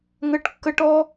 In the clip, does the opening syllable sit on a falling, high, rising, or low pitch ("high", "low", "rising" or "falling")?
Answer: high